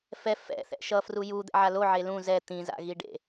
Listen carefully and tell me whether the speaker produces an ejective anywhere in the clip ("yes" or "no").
no